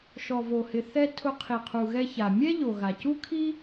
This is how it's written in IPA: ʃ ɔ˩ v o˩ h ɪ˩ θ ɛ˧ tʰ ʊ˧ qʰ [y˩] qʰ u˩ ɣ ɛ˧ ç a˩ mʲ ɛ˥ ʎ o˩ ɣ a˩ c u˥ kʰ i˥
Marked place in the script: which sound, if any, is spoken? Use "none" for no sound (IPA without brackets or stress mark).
i˩